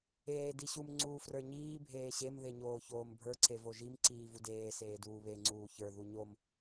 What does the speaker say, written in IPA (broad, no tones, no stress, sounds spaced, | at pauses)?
eː d i ɕ u m ŋ͡ǀ uː f r ə˞ ɲ iː bʱ eː ɕ e m ð e ɲ oː ç oː m bʱ ə˞ ǀ e v o ʒ i m ǀ iː v u d eː s eː d uː β e ŋ͡ǀ uː ç ə˞ ð u ɲ o m